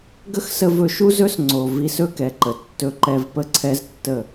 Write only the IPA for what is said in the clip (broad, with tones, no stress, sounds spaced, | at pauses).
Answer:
ɡ ə˦ x s ə˧ v ɵ˧ ʃ u˦ z ɵ˦ s ŋ͡ǀ o˨ v i˧ s ɵ˦ k ɛ˨ ǃ ə˨ tː ɵ˧ ǃ ɛ˧ v p ə˦ ǀʰ ɛ˦ z tː ə˦˨